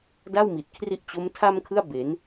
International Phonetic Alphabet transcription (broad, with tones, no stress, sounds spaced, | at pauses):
d a˥˩ w m i˨˩ t̚ kʰ r i˦˥ ʔ t͡ɕ o˦˥ m tʰ a˥˩ m kʰ ɯ˥˩ a̯ b e˩˦ n